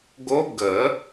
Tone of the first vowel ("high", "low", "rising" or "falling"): rising